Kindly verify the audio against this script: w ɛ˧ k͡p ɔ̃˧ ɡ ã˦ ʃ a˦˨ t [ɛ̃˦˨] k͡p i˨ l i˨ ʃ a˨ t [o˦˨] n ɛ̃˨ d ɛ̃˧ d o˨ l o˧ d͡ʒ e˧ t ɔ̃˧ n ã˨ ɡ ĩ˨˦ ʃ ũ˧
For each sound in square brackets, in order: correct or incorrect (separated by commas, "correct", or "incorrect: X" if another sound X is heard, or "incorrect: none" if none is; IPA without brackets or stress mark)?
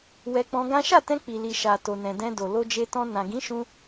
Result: incorrect: ɛ̃˧, incorrect: o˨